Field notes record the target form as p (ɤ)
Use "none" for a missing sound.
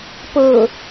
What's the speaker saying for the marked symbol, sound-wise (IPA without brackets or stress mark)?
ɤ